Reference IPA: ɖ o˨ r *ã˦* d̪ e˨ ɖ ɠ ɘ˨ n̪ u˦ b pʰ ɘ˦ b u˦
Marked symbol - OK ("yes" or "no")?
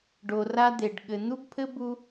no